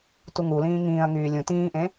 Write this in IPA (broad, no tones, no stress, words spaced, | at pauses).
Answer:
tuŋulĩː ŋĩːɐ̯ŋyː lʲũ tĩːʔẽ